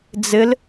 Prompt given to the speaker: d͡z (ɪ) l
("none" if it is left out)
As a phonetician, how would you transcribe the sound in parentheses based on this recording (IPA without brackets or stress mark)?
ɪ